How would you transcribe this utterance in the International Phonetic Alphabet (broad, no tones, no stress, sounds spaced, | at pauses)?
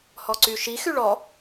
h ɔ ǀ y ʃ i x y ɭ ɔ